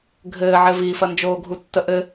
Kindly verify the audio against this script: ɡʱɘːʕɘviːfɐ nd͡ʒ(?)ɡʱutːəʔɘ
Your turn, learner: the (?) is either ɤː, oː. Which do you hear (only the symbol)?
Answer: oː